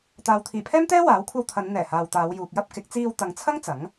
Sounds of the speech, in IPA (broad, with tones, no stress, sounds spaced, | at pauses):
t̪ aː˨ w t̪ʰ iː˨˩ pʰ ɛː˥ m t̪ ɛː˥ w aː˨˥ w kʷʰ ɐ˧ w t̪ʰ ɐ˨˧ n n̪ ɛː˨˩ h aː˨ w t̪ aː˨˧ w j uː˨ k̚ j ɐ˥ p̚ k ɪ˨˥ k̚ t͡s iː˧ w t̪ ɐ˨˧ ŋ t͡sʰ ɐ˥ ŋ t͡s ɐ˨˥ ŋ